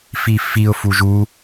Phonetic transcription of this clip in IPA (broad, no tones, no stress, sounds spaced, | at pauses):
f i f i ʊ̯ f u ʒ u